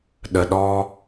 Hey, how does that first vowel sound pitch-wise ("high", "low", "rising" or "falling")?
low